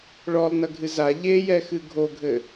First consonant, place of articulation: retroflex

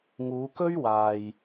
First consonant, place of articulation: velar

